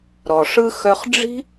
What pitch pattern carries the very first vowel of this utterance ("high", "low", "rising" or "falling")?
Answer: low